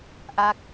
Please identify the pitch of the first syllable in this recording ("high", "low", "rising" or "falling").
falling